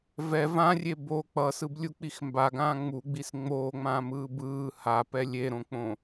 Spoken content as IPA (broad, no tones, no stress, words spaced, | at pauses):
vɛ vãrʲe bo k͡pʌsɯblʲuk͡pix mbaɡãː ŋ͡muɡ͡bis ŋ͡moːŋ͡mãːmɯː bɯː hapɛ lʲeɾõk͡põ